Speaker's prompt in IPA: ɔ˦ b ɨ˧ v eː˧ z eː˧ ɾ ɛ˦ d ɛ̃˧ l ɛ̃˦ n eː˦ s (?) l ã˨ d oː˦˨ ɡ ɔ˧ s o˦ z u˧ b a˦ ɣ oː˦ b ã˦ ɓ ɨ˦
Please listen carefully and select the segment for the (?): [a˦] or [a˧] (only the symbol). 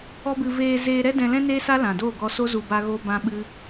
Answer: a˦